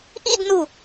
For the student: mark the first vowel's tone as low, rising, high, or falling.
falling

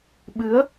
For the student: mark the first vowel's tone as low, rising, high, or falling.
rising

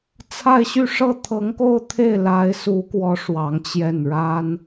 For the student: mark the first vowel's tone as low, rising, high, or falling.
falling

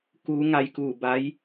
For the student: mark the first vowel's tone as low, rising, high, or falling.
rising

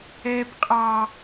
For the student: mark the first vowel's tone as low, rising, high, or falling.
low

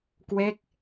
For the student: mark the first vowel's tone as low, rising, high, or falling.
falling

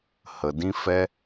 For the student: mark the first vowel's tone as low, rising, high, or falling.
low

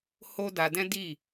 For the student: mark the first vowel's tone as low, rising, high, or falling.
high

